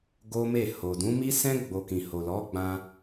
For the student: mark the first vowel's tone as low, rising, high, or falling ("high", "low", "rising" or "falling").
high